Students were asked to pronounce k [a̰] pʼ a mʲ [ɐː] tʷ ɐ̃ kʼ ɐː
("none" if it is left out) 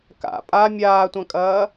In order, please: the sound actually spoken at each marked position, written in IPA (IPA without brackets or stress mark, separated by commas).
a̰, aː